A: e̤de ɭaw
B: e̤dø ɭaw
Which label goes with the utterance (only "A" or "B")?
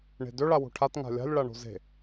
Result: B